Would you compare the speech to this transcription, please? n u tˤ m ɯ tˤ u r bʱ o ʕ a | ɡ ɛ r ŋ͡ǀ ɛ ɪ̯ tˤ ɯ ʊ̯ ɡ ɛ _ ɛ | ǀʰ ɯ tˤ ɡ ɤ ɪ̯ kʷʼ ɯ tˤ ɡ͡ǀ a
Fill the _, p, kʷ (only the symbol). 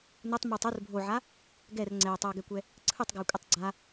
kʷ